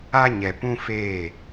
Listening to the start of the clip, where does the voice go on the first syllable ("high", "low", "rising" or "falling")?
high